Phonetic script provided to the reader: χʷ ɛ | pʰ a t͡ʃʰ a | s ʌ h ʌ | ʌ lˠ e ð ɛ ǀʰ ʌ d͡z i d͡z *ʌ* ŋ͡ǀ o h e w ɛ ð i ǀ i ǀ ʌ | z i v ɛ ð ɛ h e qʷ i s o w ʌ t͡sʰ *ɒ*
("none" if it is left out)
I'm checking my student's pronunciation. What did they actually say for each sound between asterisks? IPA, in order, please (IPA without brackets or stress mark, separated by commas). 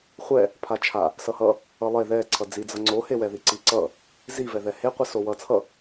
ʌ, ʌ